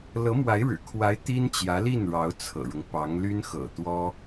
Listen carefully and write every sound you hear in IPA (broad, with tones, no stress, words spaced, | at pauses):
lɤ˧˥mwa˧˥ɪ̯ɻɻ̩˨˩kʰwa˧˥ɪ̯ t̪i˥nt͡ɕjä˧˥li˥˩nɻɑ˧˥ʊ̯ t͡sʰɤ̰˨˩ɻʊ˦ŋpɑ˧˥ŋ ly˥n xɤ̰˨˩t̪wɔ˥